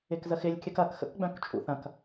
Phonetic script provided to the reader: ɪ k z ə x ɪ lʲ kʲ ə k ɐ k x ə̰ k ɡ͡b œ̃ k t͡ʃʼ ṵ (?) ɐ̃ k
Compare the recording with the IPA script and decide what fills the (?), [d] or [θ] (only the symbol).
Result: θ